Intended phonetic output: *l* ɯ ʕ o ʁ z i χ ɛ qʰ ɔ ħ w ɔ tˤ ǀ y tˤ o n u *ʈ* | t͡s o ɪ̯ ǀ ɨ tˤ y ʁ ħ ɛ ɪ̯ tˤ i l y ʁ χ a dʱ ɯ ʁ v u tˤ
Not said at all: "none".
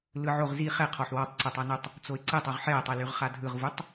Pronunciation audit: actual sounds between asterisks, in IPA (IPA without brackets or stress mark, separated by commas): l, tˤ